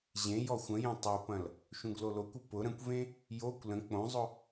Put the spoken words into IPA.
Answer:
ʑẽ jɔxʷə̃jẽ tˤupɐ̃l | ʃũɡlolokʷʊ pʊ ɾə̃kʷvẽ | jokʷ lə̃ k͡põzˤʊ

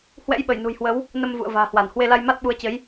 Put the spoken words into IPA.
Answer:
hwɛ̰˧˥jɓə˧˩jnṳ˨˩jhwə˨˦w | nə˧m vṵ˧˨ə̯va̤ː˨˩hwa˧˩n hwe˧la˧jma˦˥t̚ɓu˨˦ə̯ t͡ɕə˨˦j

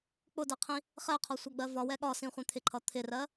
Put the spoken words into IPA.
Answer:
k͡pʊdɛqʰĩ | χɛqʰɒsʷʌɡ͡bɜ vɒwɛ ɠɒsĩχʷɛ̃ t̪ʰɪǃʰʌ t̪ʰɪrɜ

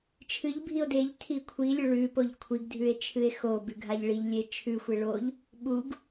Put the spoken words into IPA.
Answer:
t͡ʃʰɨʎ bʱio̯deʎtʰi kʷʰilʲo ɭʉpoʎ kʷʰiɡdʱʉe̯ t͡ʃʰɨe̯xobʉ ɡʱaʎɭiʎlʲe t͡ʃʰʉxʷe ɭoʎ | ɓuɡ

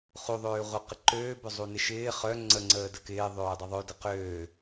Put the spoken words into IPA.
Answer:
χuðˤøːʁʷœ qɪǃøːbʏ zˤunɪʃɪː χœ ŋ͡ǀəŋ͡ǀəː dəkɪːðˤøː dˤəðˤø dəqøː

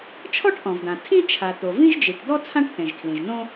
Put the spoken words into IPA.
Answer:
t͡ʃʰɔ˥ʈʔɔ̃˩vdã˩ tʰĩ˥ t͡ʃʰa˩t̪o˩ vĩ˥ʒd͡ʒi˩ʈd̪ɔ˥ t͡sʰã˥ʈθẽ˩ʒkʰlĩ˩ʒnõ˥

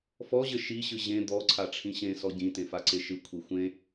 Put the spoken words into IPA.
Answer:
fɔʑɘ ʃiɕɨ ʑẽ d̪ɔǀʰaʈ͡ʂʰĩ ɕẽsɔ ɟĩtẽfaǀe ʃɨkʷʰi xʷẽ

